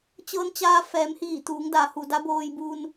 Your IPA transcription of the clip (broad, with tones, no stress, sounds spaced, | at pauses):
t͡ɕ ɤː˧ n t͡ɕ aː˧ f ɛː˩˧ m h iː˧˩ t̪ uː˩˧ ŋ d a˩˧ h u˩ d a˧˥ b oː˧ j b uː˧ n